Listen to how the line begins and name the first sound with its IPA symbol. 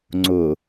ŋ͡ǀ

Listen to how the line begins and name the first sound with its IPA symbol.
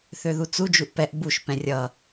θ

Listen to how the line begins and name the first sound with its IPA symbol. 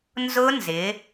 n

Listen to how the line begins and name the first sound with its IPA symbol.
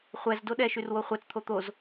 χʷ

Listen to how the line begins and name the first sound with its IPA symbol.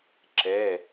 ǁ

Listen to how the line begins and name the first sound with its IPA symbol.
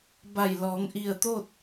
b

